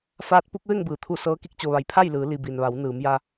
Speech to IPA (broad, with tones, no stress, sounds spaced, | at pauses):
f aː˧˥ t̚ p u˧˥ k̚ ʋ e˥˨ ŋ b ɯː˩ t̪ʰ u˥˨ s ɤː˧˥ k i˧˥ k̚ t͡ɕ o˩ ʋ a˩˧ j pʰ a˥˨ j l ɯː˩˧ l i˩ b i˩ n ʋ a˩˧ w n ɯː˩˧ m j a˧